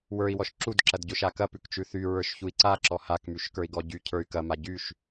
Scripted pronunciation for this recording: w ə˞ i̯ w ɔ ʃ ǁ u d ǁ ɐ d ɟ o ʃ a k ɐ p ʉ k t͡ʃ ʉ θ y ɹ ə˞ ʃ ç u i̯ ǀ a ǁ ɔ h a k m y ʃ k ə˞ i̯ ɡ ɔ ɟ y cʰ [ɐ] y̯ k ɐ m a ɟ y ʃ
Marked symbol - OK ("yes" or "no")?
no